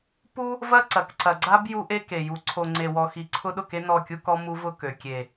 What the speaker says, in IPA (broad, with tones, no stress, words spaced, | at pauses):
pu˦ | vɐ˦ ǀɐ˨kǀɐ˨ ɡ͡ǀa˦b ju˦ʔe˦ke˨ju˨˦ ǀʰo˨ŋ͡ǀe˨wɔ˨xi˨ ǀʰʊ˦ ɗʊ˦˨ke˦ nɔ˦˨kʲu˦kɔ˦ mu˦vʊ˦kø˨ kʲe˨